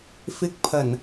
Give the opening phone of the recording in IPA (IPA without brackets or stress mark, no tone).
f